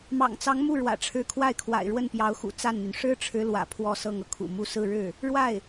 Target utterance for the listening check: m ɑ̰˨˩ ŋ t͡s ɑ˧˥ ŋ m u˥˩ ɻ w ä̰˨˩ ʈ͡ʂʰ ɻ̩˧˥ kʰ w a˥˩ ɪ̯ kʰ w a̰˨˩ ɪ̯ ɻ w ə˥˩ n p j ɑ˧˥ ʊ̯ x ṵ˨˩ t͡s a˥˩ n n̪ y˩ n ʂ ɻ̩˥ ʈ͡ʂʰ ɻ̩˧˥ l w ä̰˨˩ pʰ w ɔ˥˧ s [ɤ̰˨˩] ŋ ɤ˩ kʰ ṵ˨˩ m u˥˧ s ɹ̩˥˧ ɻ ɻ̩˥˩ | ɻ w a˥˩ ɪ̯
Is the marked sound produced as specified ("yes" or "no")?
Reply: no